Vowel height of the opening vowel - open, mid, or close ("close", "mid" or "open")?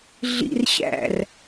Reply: close